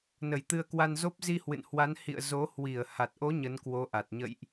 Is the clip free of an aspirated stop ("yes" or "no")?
yes